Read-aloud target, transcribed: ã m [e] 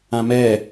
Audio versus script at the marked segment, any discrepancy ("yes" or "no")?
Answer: yes